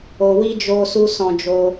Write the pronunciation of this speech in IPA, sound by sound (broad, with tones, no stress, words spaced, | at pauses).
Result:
o˧wi˦ d͡ʒo˦su˦ sɔ̃˦d͡ʒo˦